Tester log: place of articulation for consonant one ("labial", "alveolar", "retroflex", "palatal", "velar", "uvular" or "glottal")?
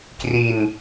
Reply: velar